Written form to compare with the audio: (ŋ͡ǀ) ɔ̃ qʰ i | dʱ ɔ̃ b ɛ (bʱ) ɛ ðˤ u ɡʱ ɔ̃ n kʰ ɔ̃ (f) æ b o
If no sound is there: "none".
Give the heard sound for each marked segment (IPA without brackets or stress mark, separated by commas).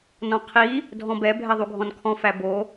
n, bʱ, f